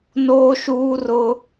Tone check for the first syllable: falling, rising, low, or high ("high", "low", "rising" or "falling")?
high